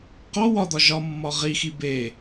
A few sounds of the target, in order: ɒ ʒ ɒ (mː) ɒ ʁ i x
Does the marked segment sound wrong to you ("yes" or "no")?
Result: no